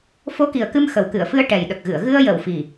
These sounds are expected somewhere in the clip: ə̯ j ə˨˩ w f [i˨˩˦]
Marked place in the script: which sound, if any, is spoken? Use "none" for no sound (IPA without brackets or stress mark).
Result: i˨˩